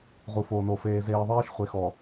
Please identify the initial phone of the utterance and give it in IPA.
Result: ʁ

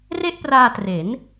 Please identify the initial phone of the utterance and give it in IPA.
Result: r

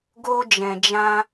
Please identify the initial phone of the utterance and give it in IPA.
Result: ɡ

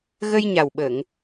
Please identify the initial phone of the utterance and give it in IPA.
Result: ɣ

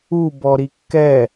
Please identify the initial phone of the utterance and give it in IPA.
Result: u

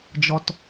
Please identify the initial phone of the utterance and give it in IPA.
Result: d͡ʒ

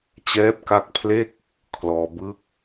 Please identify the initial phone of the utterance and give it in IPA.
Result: t͡ɕ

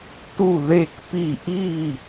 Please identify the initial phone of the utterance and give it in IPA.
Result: t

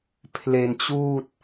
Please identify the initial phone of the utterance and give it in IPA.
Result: pʰ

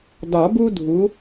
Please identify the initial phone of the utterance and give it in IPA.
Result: d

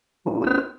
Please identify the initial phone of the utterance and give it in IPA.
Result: ṵ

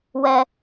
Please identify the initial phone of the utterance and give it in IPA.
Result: w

